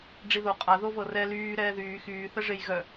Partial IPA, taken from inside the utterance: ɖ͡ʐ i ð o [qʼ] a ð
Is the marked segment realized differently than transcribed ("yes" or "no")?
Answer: no